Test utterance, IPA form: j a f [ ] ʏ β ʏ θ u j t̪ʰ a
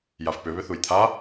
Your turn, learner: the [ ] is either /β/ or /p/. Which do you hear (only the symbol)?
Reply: p